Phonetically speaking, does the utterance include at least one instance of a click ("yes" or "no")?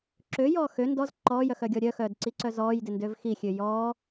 yes